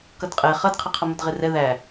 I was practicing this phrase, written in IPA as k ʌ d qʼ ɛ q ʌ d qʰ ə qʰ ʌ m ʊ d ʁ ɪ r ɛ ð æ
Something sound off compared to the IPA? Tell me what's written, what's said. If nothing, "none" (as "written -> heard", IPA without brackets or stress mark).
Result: q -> χ